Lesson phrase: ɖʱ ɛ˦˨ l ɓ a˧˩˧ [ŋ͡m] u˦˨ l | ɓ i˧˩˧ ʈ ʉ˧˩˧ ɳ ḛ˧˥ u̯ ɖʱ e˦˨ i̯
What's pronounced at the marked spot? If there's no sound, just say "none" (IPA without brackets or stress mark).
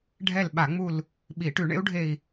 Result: ŋ͡m